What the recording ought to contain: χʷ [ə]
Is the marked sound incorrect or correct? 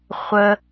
correct